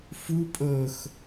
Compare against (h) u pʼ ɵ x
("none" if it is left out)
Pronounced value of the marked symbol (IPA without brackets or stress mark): f